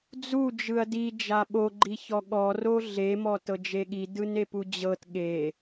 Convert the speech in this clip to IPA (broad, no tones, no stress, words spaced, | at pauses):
d͡zu d͡ʒɯɐ̯di d͡ʒaɓo ɡ͡ǃiçɔɠɔ roɮe mɔtɤd͡ʒeɠi dɯnepud͡ʑɤt ɠe